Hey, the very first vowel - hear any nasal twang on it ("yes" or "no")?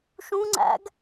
yes